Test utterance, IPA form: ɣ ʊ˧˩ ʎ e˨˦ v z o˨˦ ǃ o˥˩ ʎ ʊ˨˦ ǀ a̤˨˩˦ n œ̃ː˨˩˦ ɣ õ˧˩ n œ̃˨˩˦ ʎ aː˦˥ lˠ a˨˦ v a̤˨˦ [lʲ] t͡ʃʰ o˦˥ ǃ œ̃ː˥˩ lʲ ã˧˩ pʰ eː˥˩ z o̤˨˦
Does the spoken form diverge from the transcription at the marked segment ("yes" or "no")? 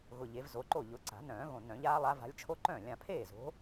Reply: no